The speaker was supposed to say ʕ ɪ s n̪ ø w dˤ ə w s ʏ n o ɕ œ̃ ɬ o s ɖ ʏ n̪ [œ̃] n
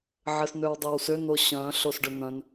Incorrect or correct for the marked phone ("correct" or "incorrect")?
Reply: correct